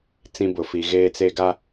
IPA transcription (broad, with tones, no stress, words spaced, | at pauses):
t͡sĩ˦bʊ˨ fi˨ɣeː˦t͡se˦ ɡa˦